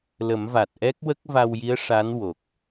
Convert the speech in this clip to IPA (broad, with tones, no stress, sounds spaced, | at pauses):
l ə˨˩˦ m v a˨˩ t̚ ʔ ɛ˦˥ k̚ w ə˦˥ k̚ v a˧ w j i˧˥ ə̯ ʂ a˧˥ n w o˨˩ k̚